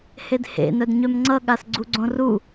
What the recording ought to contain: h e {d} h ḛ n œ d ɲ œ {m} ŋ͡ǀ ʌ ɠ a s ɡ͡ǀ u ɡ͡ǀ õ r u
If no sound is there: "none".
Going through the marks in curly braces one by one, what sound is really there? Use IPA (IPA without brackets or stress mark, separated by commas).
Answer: d, m